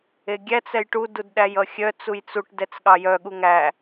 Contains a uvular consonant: no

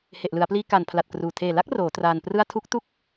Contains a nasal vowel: no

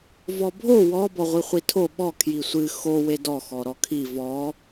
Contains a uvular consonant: yes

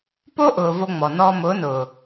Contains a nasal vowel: no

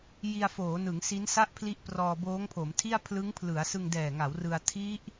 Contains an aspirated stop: yes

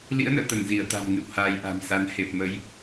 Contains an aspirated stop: no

